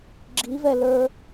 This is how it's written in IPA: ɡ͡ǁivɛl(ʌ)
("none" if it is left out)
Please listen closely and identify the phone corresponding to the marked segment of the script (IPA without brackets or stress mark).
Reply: ə˞